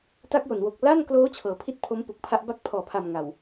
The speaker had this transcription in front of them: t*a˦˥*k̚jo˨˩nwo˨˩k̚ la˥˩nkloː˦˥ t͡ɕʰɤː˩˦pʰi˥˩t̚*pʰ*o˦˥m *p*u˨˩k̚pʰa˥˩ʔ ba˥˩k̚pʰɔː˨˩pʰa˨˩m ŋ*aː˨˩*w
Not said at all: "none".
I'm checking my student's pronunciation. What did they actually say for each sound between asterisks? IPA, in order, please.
a˦˥, pʰ, p, a˨˩

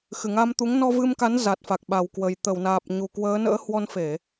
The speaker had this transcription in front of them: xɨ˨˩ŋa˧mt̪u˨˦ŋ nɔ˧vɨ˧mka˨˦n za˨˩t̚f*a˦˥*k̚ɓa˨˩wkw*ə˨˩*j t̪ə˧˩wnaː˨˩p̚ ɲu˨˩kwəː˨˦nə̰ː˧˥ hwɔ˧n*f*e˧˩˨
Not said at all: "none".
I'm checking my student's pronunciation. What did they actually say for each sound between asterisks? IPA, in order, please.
a˨˩, ə˨˩, f

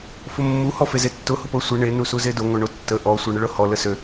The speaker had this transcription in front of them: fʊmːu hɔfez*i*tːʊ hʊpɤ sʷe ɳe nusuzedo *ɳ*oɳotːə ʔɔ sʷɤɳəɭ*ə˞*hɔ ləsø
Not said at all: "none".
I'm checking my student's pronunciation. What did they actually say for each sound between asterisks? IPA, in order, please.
e, ŋ, ɤ

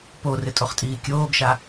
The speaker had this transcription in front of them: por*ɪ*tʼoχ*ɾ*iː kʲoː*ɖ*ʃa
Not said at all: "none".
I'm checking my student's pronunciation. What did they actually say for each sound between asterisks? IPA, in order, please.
ɪ, tʼ, ɡ

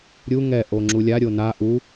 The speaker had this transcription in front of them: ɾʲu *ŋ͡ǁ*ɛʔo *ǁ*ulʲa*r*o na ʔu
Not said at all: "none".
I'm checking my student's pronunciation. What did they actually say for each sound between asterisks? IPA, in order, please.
ŋ, ŋ͡ǁ, ɾʲ

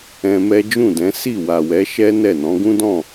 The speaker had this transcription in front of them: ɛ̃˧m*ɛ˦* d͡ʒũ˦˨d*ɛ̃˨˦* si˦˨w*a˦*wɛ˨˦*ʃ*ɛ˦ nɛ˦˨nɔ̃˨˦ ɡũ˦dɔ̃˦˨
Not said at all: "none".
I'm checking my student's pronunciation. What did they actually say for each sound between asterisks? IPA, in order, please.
ɛ˦, ɛ̃˨˦, a˨, ʃ

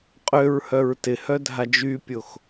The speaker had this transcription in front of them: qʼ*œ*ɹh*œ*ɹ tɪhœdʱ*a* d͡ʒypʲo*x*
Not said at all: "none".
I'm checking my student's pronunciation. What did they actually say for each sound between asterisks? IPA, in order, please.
ø, œ, a, x

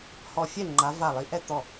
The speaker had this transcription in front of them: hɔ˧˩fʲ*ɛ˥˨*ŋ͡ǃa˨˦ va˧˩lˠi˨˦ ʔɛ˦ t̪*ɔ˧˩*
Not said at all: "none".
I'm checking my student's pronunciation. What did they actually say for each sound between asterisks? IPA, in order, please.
ɛ˥˨, ɔ˧˩

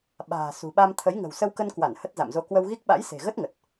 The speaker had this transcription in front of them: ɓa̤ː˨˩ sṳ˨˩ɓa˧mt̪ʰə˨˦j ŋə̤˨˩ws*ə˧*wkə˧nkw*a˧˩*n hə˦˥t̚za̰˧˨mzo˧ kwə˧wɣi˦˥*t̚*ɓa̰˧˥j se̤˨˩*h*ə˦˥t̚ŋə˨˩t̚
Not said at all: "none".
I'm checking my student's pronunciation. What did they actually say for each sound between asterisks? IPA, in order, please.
ə˧, a˧˩, k̚, ɣ

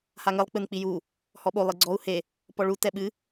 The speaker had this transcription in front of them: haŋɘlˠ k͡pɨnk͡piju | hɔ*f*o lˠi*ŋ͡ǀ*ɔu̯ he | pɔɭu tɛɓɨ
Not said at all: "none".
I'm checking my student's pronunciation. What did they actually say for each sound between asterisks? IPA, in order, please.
ɓ, ɡ͡ǀ

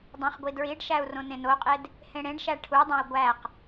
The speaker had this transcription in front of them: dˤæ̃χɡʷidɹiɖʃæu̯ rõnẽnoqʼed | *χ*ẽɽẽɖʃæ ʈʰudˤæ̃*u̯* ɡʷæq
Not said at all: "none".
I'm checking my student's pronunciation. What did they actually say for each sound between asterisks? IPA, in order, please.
h, i̯

